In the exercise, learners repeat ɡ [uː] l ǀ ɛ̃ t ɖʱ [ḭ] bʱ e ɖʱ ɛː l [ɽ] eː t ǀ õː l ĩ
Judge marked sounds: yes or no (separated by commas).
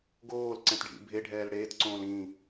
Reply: no, yes, yes